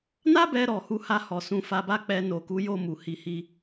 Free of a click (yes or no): yes